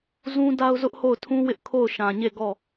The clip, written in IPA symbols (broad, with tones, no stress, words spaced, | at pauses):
zũ˦ da˦ʊ̯zʊ˦ʔho˦˨ʊ̯tʰũ˦ wɪ˦ʔkʰo˦˨ʊ̯ʃã˨ɲe˦˨ ɡɔ˦˨